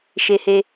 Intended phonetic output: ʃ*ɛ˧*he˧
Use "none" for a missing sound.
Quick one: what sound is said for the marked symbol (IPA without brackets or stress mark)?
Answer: e˧